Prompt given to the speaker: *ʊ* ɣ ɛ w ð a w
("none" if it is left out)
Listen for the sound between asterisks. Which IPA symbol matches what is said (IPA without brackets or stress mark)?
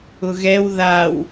ʊ